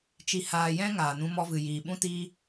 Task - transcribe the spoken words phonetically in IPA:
t͡ʃ i˨ h aː˨ j ɛ̃˦ ŋ aː˨ n ũ˧ m ɔ˧ v ɨ˨ j iː˨ ɓ ũ˦ t iː˦

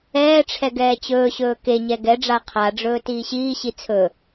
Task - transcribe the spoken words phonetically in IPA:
ɛː ʈ͡ʂʰ ɛ ɡ ɛː t͡ɕ ɵː ɕ ɵː k e ɲ ɛ ɡ ɛ ɖ͡ʐ a qʰ a ɖ͡ʐ ɵː t iː ɕ iː ɕ i t͡sʰ ɵ

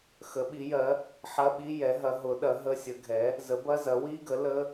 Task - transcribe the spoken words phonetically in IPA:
x ə˩˥ ɓ i˩˥ j ɜ˩˥ | ħ ɐ˧˥˧ ɓ i˧˥˧ j ɛ˩˥ ɦ ɐ˩˥ ɦ ʊ˩˥ ɗ ɐ˩˥ ɦ ə˧˥˧ sʲ ə˩˥ ɡʱ ɛ˩˥ | z ə˩˥ b ɐ˧˥˧ z ɐ˩˥ w i˧˥˧ ɡ ə˩˥ l ə˧˥˧

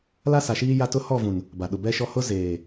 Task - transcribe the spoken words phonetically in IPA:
l a˦ s a˨ ʃ iː˦ j a˦ t ʊ˦ h ɔ˦˨ v ũ˨ n | b a˨ ɗ ʊ˨ b ɛ˦ ʃ ɔ˦ h ʊ˦ z eː˨

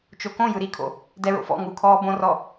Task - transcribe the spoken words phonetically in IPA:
t͡ʃ o k õ j ɯ ɾ i kʰ o̰ | d ɛ ɹ o̰ f ɔ̰ ŋ u kʰ ɔː b õ r ɔ

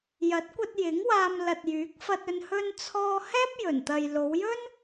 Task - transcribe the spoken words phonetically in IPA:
j ɐ˨˥ t̚ kʷ ɐ˧ t̚ j ɪ˨˥ ŋ w aː˧ m l ɐ˨ t̚ j yː˨˥ k̚ f ɐ˧ t̚ ɵ˧ n h ɵ˧ n t͡sʰ ɔː˧ h ɛː˥ p̚ j ɵ˨˩ n t̪ ɐ˨ j l o˨˧ w j ɵ˥ n

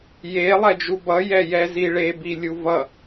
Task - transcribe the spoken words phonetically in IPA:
j e lˠ ɛ d͡ʒ u b ʌ j ɛ j ɛ z i ɭ e b i lʲ u v ʌ

